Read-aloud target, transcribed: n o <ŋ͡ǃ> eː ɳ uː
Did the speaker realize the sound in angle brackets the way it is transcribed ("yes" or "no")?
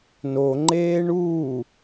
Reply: yes